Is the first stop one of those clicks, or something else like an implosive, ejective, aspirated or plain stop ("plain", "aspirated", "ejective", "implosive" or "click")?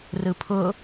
aspirated